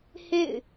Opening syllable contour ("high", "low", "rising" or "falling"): falling